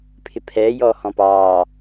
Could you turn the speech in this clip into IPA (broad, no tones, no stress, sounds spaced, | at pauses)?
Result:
pʰ ɪ pʰ ɛː j ɔː h ɔ̃ p ɑː